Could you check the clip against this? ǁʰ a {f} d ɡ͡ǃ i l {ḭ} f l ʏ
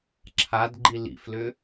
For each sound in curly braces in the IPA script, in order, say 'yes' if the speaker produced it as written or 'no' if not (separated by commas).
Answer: no, yes